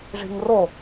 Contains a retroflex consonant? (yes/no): yes